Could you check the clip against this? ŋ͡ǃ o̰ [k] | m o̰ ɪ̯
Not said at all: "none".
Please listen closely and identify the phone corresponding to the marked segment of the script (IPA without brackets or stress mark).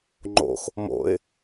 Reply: x